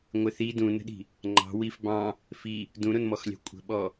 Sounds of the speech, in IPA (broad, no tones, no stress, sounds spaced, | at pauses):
ŋʷ ɪ θ i d ũ n ə̤ ɗ i̤ | ŋ͡ǃ ɑ̤ w i f b ɑ̃ | f i | d ũ ɾ ʊ n m ɔ x lʲ ɑ̤ kʷʼ ə̤ ɓ ɔ